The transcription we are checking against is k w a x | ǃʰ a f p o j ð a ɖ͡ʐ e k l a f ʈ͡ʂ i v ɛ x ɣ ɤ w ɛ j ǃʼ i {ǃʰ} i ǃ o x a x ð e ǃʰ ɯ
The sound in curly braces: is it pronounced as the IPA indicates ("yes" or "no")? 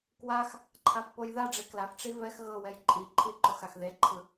yes